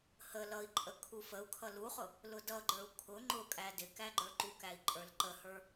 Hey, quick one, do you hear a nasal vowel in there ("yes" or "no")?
no